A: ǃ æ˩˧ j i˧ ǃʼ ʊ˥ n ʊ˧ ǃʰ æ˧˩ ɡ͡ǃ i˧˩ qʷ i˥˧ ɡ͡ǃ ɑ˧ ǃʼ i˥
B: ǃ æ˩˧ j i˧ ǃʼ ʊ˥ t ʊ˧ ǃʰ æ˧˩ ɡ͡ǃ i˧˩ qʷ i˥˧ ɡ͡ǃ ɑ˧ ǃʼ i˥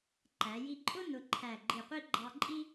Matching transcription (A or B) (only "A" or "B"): A